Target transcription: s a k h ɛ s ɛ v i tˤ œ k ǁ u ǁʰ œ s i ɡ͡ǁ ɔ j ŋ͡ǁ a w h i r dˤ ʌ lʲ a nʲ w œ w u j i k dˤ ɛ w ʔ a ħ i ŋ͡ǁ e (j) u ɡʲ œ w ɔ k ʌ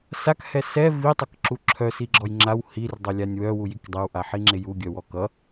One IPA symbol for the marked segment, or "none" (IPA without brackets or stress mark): j